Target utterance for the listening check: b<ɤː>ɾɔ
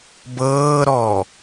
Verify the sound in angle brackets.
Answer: correct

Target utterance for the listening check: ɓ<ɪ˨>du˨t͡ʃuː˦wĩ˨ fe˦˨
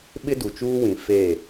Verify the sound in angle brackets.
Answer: incorrect: ɪ˦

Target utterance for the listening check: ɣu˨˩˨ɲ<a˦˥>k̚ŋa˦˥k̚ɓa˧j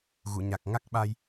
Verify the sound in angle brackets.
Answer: incorrect: a˨˩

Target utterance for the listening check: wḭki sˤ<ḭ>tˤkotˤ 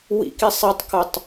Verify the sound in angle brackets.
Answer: incorrect: i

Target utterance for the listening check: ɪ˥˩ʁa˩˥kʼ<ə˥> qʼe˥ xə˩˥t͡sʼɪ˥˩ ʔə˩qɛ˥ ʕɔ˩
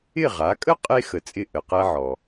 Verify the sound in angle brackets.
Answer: correct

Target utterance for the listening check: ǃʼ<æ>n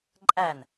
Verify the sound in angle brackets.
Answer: correct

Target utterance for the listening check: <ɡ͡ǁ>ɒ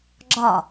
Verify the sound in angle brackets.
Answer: correct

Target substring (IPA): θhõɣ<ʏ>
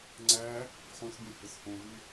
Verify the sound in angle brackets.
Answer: incorrect: y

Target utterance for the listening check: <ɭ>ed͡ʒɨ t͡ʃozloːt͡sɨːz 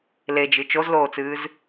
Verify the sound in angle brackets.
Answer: incorrect: l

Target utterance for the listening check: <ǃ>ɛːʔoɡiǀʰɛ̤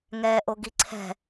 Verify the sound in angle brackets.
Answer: incorrect: ŋ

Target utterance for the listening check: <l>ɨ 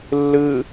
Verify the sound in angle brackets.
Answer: incorrect: lː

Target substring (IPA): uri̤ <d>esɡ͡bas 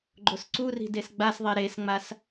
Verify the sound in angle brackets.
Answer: correct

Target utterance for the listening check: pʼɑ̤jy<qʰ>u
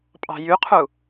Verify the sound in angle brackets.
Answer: correct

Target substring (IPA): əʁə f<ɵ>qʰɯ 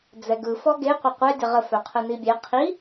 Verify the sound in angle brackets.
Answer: incorrect: œ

